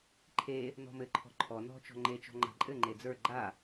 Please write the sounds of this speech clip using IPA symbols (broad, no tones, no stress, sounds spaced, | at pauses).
ǃʰ e | n ɔ̤ m ɘ ǃʰ ɔ̤ ǃʰ ɔ n ɔ̤ t͡ʃ ɔ̤ ŋ͡ǃ e t͡ʃ ɔ̤ ŋ͡ǃ a̤ ǃʼ ɘ ŋ͡ǃ e d͡z ə˞ ɡ͡ǃ a